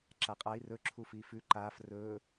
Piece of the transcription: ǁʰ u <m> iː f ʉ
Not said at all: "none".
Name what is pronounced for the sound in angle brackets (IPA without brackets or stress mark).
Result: f